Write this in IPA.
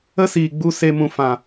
ə˦ s iː˨ ɡ͡b u˧ s e˧ m ũ˨ f ã˨

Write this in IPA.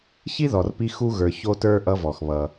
ç i˥ ð ɔ˩ r p i˧ x u˧ ɣ ə˞˩ ç o˧ t ə˞˧ ʔ ʌ˧ v ɔ˩ x β ʌ˩

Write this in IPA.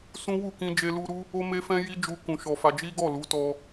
s ũ˦ w u˦˨ k ĩ˧ d͡ʒ e˧ l u˧ ɾ u˦ | o˦ m e˦ f ɛ̃˦ j i˦ d͡ʒ u˧ k ũ˨ ʃ ɔ˨ f a˧ d͡ʒ i˦ ɡ ɔ˦˨ l u˨˦ t ɔ˧

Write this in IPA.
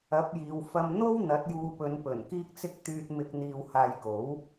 ɐ˨˥ p̚ j iː˨˧ w f ɐ˧ m n̪ o˥ w n̪ ɐ˨˥ t̚ j uː˧ p ɵ˨˧ n p ɵ˨˩ n k iː˥ k̚ t͡s ɪ˥ k̚ t̪ yː˧ t̚ m ɪ˧ k̚ n̪ iː˧ w h aː˧ j k o˨˥ w

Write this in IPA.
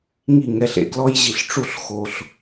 ŋ i˥˩ ŋ ɛ˥˩ ɬ ḛ˦ ɡ l ɔ˦ j ʑ i˨ ɬ ʈ͡ʂ u˥˩ ɬ x o˨ ɬ

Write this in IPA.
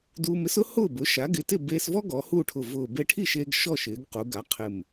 d uː˧ m ɪ˩˥ s ʊ˥ h ʊː˥˨ b ʊ˩˥ ʃ a˩˥ ɡ ɪ˩˥ t ɪ˥˨ b eː˧ s v ɔ˥ ɡ ɔ˩˧ h uː˥˨ ʈʰ ʊ˧˩ v ʊː˧˩ b e˧ ʈʰ i˥˨ ʃ eː˧ ɡ ʃ ɔ˥˨ ʃ ɪː˩˧ ɡ q u˩˧ ɡ a˩˥ qʰ ɪ˧˩ m

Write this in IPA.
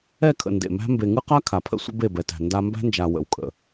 ɛ˦˨ kʰ ə̰˨ n d ḛ˨ m æ̤˦ m b e˨ ŋ ɯ˦ q a˦ kʰ a˨ pʰ ə̰˦ sʷ ə̰˦ b e˦˨ b ɛ˨ t æ̤˨ n d a˦ m b æ̤˦ n d͡ʒ a˨ w ə̰˨ w kʼ ə̰˨

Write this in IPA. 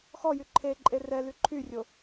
x ɔ j y ǃʰ e ǃʼ e r ɛ l y ǃʰ y rʲ o

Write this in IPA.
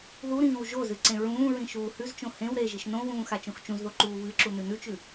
ð u ɾ ĩː w ʒ o z ɨ ǀ ẽ ɹ ũː ɹ ĩ ʃ uː h ʉ z t͡ʃ õ h ẽ w ɾ e ʒ i ʃ n õ w ũː x a t͡ʃ õ x t͡ʃ ũ z ð o ǃ uː β ɨ ǁ u n ʉ n ʉ t͡ʃ ʉ

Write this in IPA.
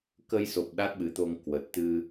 k ə˧ j s o˨˩ p̚ ɗ a˦˥ t̚ ɓ ɨ˨˦ t̪ o˧ ŋ k w ə˨˩ t̚ t̪ ɨ˧

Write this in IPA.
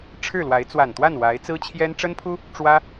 ʈ͡ʂʰ ɻ̩˥˩ l w a˧˥ ɪ̯ t͡s w a˨˩ n t̪ w a˥˩ n w a˧˥ ɪ̯ t͡s ɹ̩˥ t͡ɕʰ j ɛ˥ n ʈ͡ʂ ə˥ n pʰ u˥ | ʈ͡ʂ w ä˥

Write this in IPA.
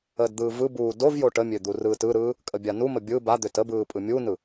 əː d d̪ ɯː v ɯ b uː d o v j o ʈ ə mʲ ø d̪ u r ɯː t ɯ ɾ ɯː | kʼ ə bʲ a n u m ə bʲ ɯ b a d̪ ø t ə b ɯː pʼ ɯ mʲ u n ɯ

